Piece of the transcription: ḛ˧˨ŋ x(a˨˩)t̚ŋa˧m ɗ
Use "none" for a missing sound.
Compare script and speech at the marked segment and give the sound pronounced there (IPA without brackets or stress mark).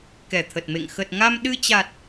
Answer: ə˨˩